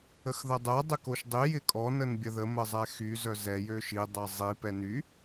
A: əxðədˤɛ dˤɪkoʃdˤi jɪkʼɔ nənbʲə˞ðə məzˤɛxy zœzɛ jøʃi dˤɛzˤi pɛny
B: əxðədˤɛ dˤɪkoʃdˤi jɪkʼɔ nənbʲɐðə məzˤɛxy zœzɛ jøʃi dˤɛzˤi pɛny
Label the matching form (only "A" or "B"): B